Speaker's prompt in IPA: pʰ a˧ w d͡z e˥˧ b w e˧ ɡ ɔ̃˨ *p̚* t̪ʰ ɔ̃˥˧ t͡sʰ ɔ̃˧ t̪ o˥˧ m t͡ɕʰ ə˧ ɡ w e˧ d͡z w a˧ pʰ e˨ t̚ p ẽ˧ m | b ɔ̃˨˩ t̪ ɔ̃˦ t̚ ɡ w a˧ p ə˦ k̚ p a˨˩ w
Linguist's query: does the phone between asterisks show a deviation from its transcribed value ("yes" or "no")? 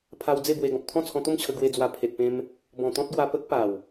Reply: no